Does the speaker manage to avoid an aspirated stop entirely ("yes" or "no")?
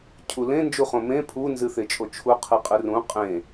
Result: no